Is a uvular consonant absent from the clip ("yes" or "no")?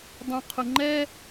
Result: no